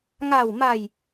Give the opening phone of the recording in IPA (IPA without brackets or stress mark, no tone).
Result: ŋ